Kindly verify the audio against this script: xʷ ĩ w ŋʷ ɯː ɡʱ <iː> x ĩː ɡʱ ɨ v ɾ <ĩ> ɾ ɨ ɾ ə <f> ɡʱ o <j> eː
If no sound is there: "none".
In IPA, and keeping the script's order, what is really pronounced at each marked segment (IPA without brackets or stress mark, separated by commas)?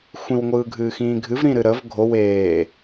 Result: ɨː, ĩ, v, w